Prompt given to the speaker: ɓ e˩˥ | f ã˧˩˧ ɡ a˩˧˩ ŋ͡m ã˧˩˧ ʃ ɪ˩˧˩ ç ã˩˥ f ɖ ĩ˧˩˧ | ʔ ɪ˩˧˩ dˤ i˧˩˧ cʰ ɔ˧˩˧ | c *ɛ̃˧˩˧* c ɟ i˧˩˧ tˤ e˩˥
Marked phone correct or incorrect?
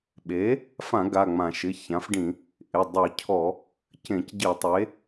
incorrect